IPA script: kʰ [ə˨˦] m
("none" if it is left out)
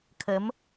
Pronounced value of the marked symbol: ə˨˦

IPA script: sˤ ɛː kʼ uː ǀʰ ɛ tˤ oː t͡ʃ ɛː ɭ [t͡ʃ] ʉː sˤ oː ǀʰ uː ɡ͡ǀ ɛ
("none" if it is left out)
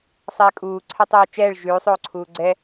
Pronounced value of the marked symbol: ʒ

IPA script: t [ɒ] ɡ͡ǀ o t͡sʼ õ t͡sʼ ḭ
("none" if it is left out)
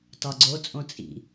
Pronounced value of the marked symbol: ɒ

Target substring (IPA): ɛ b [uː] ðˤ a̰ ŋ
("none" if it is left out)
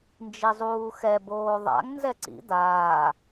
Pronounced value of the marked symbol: oː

